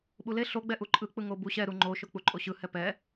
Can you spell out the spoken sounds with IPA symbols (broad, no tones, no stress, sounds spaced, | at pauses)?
ɓ u l e ɬ o ɡ͡b ɛ ʔ u ǃʼ ɯ k͡p ɯ ŋ o b u ɕ ɛ ɾ u ŋ͡ǃ o ʃ o k͡p u ǃʼ o ɕ ɯ h ɛ p ɛ